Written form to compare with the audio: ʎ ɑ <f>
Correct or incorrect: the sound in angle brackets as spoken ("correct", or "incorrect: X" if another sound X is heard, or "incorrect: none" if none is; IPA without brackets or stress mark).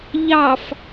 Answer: correct